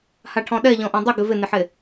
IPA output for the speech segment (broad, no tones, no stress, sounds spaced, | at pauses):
h a ʈʰ ɔ̃ ɗ ɛ ʎ ɔ̃ ʔ õ dˤ ɪ ɡ ɪ v ɪ n ɪ ħ e